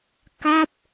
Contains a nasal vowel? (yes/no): no